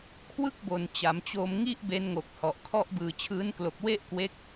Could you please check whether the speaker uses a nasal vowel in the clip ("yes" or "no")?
no